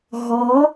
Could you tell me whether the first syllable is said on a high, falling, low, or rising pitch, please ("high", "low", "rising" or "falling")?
rising